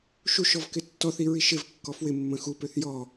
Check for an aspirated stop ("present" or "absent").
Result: absent